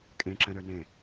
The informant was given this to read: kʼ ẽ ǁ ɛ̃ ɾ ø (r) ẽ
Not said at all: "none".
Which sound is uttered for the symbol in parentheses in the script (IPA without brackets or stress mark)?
n